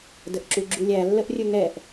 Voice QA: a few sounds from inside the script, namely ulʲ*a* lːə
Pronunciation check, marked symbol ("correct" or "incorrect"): incorrect